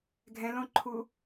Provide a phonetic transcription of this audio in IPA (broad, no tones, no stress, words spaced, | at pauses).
ɡʱɛ̃lõǃʰu